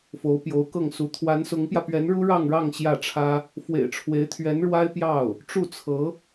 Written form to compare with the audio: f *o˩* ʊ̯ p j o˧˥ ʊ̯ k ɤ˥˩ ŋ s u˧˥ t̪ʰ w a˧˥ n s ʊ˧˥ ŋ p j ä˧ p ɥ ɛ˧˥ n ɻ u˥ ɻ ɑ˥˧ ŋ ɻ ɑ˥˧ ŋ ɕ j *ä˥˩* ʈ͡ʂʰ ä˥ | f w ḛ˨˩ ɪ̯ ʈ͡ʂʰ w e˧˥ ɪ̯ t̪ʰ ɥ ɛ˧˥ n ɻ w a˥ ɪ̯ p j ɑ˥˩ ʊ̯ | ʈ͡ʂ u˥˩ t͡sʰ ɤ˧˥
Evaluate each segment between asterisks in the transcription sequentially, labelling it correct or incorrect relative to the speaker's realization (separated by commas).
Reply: incorrect, correct